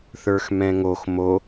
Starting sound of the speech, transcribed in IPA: θ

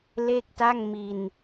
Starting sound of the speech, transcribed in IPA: l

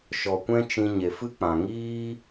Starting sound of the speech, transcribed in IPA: ʃ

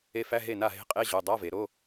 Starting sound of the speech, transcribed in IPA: e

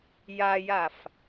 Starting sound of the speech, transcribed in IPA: j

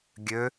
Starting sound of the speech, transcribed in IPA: ɡʲ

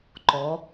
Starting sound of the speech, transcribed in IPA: ǃ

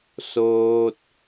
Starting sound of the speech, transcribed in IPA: s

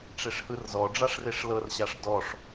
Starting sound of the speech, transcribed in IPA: ʈ͡ʂ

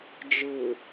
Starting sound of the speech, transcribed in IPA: d͡ʒ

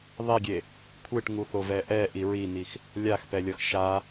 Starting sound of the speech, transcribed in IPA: ðˤ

